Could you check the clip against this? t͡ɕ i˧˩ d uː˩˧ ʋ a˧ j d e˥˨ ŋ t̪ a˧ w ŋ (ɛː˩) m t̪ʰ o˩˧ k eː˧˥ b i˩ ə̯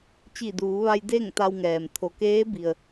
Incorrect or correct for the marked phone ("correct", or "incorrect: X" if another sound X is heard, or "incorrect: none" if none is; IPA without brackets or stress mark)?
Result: correct